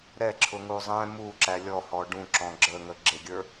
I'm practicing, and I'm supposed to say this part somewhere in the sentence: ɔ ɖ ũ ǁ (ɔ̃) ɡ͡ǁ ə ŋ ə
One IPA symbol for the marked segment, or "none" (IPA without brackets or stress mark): ɔ̃